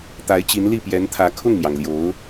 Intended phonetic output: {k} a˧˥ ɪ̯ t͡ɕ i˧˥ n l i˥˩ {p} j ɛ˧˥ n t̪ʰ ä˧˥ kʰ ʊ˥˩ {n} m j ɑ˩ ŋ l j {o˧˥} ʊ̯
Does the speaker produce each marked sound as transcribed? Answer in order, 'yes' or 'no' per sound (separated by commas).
no, yes, no, yes